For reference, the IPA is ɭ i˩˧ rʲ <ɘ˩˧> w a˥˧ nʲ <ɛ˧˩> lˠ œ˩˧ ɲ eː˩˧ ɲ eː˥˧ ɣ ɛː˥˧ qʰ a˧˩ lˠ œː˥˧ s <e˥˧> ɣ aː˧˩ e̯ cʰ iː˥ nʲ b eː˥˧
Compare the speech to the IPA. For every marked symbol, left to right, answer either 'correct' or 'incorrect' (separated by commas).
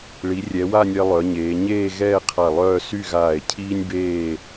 incorrect, incorrect, incorrect